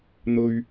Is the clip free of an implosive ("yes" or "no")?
yes